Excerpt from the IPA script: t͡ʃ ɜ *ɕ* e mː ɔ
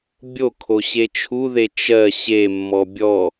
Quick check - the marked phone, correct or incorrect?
correct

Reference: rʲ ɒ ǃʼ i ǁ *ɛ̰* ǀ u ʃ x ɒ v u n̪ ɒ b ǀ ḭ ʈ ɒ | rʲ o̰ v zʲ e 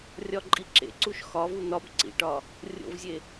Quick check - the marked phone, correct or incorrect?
incorrect: ḛ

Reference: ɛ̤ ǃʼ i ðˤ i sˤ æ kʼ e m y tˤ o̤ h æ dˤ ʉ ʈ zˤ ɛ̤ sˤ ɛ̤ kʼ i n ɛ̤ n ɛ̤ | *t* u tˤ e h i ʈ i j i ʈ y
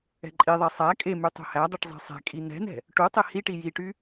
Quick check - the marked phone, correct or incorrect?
incorrect: ʈ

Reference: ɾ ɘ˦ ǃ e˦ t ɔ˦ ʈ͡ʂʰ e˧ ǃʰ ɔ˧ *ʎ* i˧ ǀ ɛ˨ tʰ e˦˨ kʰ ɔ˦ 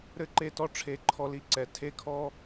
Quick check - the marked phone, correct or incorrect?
incorrect: l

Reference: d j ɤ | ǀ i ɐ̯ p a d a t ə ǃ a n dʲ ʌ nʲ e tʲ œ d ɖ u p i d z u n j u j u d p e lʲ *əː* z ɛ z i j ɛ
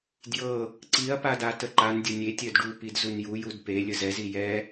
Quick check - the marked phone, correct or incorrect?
incorrect: ə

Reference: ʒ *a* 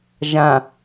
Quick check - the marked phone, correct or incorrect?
incorrect: ã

